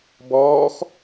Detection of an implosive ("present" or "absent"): absent